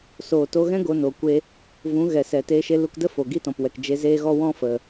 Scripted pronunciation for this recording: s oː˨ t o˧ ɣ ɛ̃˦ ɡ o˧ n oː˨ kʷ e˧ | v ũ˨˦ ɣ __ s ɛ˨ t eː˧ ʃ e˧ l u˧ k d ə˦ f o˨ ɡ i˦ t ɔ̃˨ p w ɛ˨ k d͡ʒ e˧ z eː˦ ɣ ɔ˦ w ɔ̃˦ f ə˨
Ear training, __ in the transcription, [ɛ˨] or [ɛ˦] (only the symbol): ɛ˨